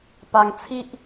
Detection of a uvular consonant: absent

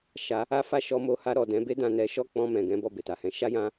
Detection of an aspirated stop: absent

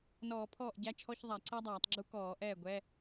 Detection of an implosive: absent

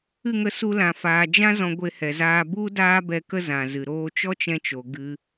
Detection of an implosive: absent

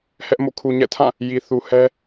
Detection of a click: absent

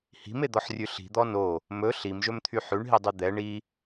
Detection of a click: absent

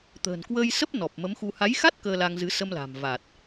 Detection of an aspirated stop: absent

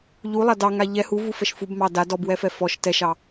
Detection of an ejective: absent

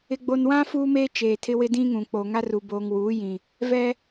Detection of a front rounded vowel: absent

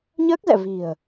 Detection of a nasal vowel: absent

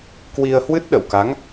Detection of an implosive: present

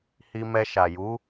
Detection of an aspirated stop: absent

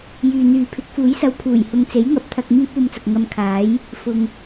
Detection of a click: absent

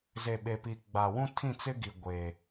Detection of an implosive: present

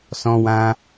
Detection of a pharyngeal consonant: absent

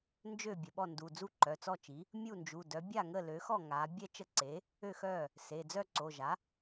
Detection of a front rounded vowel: present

